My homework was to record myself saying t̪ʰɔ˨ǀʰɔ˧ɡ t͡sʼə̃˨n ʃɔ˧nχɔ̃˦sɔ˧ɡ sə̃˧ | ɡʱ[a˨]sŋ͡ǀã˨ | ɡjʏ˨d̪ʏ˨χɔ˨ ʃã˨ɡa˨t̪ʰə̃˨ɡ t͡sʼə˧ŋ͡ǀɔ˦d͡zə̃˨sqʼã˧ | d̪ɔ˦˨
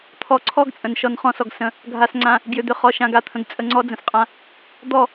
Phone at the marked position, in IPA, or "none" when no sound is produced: a˨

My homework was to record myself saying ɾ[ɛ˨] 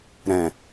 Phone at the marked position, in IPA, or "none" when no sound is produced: ɛ̃˨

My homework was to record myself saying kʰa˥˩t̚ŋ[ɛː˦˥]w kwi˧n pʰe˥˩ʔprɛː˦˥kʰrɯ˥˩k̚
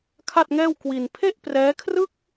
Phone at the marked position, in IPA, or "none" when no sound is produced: ɛː˥˩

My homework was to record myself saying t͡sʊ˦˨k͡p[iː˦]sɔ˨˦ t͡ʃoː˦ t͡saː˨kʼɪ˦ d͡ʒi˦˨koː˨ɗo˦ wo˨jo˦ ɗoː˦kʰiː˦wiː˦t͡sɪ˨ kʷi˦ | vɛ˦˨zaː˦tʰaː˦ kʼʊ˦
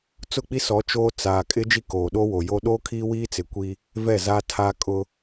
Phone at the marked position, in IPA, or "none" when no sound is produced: i˦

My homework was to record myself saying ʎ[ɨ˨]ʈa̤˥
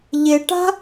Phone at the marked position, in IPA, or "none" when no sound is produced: e˨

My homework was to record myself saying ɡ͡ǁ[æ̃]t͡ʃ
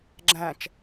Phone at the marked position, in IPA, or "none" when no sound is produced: æ̃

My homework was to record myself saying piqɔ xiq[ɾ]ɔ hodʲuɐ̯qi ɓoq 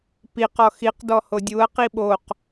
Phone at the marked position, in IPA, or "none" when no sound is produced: d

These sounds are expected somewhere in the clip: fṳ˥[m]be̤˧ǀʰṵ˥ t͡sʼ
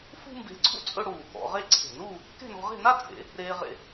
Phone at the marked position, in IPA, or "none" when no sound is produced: m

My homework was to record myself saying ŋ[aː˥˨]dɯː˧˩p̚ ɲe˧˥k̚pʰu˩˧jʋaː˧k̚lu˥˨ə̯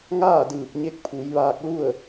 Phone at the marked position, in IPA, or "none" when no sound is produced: aː˥˨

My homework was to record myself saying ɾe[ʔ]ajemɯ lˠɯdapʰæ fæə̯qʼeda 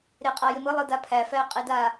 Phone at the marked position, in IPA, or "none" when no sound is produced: qʼ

